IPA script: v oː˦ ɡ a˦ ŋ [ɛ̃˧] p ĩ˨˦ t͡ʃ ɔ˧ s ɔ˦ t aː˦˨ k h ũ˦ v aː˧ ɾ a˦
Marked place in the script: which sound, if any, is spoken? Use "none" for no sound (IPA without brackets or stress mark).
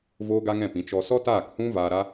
ɛ̃˦˨